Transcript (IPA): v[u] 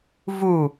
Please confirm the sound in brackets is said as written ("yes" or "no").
yes